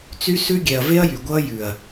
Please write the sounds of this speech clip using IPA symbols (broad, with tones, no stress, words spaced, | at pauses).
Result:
t͡sy˦ sʉ˦ɡʲɛ˨ɐ̯ ve˦ɐ̯jy˨ɡʷʌː˦ jʉ˨ɐ̯